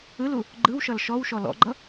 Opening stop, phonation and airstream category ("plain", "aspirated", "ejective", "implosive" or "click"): click